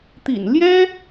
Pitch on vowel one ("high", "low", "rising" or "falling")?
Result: low